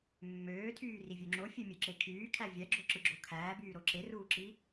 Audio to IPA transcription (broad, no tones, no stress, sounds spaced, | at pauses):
mː øː tʰ yː r i vʲ ø ŋ͡ǁ o fʲ ø mʲ ø ǁ e kʰ yː kʰ æ vʲ æ ɡ͡ǁ o ǁ ɯ ɡ͡ǁ o kʰ æː b yː ɾ o ǁ e r uː ǁ i